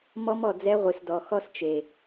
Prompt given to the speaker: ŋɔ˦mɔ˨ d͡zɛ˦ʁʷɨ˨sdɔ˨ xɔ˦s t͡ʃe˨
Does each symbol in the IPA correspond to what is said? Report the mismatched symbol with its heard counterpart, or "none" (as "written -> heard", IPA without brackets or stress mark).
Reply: ŋ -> m